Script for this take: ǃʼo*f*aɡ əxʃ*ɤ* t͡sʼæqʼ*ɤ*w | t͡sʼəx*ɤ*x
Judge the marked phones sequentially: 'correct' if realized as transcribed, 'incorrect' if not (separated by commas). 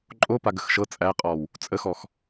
incorrect, correct, incorrect, incorrect